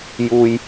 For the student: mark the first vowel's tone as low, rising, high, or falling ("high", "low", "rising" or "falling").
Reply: low